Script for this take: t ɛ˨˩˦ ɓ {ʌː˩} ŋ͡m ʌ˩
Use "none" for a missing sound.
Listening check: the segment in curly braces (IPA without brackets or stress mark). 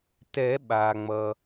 aː˩